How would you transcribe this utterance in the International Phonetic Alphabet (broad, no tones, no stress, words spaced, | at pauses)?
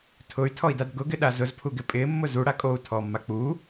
tʰʊy̯tʰɔi̯dad ɡʊɡɪɗa zʊzpʰuɡɪ pʼɪːmːʊ zuɽa kʼou̯tʰɔːmːa k͡pu